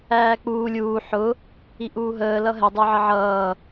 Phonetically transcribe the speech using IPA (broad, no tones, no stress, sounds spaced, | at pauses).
æː k͡p uː lʲ uː ħ ʊ | i ʔ uː ɦ əː l ʌ ɦ ɛ dˤ ə˞ ʕ ə ʕ ʌː